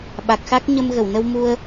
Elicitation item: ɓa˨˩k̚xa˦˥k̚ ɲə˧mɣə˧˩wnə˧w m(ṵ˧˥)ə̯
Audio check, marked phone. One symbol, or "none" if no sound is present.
u˧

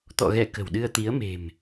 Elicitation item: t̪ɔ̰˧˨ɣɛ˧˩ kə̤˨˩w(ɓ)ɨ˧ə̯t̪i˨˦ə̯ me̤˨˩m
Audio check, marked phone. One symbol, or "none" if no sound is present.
ɗ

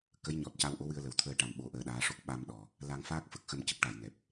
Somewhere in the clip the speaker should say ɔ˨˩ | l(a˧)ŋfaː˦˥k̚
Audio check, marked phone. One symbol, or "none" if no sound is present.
a˧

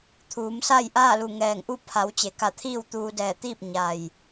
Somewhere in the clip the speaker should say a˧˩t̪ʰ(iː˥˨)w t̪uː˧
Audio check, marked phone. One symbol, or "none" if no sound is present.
iː˥˨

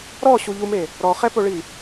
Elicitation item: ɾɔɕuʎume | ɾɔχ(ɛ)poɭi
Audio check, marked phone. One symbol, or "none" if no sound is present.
ɛ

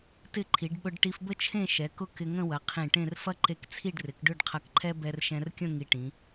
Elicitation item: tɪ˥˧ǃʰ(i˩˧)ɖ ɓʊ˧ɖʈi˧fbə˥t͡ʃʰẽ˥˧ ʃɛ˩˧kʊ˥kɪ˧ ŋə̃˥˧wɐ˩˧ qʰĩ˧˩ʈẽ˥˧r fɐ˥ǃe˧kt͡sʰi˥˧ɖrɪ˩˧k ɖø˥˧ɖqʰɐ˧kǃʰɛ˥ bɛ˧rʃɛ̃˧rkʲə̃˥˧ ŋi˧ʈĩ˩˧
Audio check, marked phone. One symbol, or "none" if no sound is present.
i˩˧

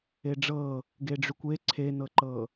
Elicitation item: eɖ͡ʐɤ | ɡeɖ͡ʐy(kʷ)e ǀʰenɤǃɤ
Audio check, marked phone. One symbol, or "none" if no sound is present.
kʷ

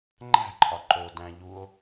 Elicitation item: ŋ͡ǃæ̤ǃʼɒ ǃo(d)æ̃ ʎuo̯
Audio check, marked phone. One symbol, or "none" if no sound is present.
d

